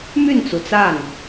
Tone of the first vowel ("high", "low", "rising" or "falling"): falling